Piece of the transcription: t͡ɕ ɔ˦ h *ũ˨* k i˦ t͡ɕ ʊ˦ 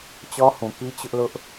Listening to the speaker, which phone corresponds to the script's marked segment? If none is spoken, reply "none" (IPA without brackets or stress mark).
ũ˨